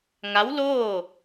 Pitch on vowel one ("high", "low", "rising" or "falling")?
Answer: rising